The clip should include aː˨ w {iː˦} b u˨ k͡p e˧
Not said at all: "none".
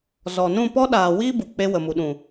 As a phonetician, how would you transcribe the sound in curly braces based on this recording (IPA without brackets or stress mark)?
iː˦